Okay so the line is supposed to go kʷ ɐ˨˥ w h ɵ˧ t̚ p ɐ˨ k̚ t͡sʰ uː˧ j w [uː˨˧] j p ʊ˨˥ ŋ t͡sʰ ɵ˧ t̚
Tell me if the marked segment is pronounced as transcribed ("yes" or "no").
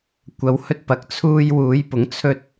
yes